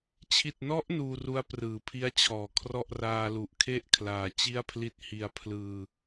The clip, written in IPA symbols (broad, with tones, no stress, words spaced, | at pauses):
t͡ɕʰi˨˩t̚nɔ˦˥ʔ nuː˧ru˦˥a̯ prɯː˩˦pʰi˦˥a̯t͡ɕʰɔː˩˦kʰrɔ˥˩ʔ raː˧lu˨˩ʔkʰe˥˩ʔkʰlaː˨˩ t͡ɕi˥˩a̯pʰli˥˩t̚ hi˧a̯pʰlɯː˧